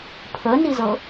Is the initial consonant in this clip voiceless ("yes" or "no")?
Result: yes